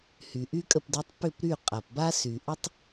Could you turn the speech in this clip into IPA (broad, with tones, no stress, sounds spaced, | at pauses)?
h y˩ ʔ y˥ kʼ ə˥˩ p d ʏ˧˥ tˤ p ʏ˥˩ p ɾ y˥˩ qʼ a˩ p b a˥ s y˩ ʔ ʏ˥ tˤ